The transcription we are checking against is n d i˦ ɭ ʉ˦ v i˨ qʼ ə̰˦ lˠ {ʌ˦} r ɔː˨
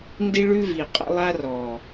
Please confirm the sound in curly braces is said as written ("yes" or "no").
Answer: no